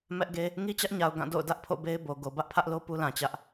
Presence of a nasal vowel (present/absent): present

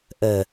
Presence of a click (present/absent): absent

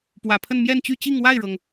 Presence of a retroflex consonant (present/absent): present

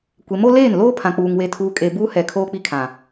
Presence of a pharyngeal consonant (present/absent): absent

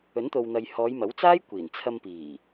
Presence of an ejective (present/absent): absent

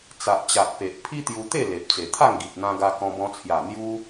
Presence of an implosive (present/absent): absent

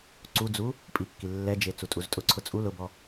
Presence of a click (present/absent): present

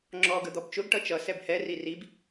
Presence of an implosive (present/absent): absent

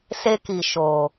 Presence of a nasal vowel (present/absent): absent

